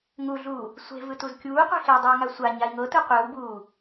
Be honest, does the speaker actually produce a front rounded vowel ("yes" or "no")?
no